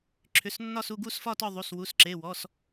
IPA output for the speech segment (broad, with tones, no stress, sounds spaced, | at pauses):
ǁʰ ʏ˩˧˩ s nː ɒ˥˧ s u˥˧ ɡ u˥˧ s f ɒ˥˧ t ɒ˥˧ ðˤ u˩˧˩ s w u˩˧˩ s ǁ e˩˧˩ w ɔ˩˧˩ s